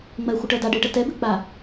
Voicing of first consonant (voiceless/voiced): voiced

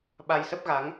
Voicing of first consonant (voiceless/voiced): voiced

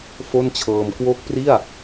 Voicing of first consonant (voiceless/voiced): voiceless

